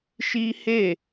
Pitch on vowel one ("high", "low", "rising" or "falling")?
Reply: high